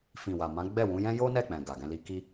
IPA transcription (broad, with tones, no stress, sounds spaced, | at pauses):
f ĩ˨ w a˨ m ã˨˦ ɡ͡b ɛ˦˨ w ũ˨˦ j ɛ̃˦ j o˦ n ɛ˦˨ k͡p ɛ̃˨ ɡ a˨ ɡ ɛ̃˧ l i˧ k i˧